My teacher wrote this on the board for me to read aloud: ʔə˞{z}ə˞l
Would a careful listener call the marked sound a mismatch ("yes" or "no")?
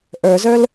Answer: no